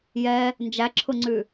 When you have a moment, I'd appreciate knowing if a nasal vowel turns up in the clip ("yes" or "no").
no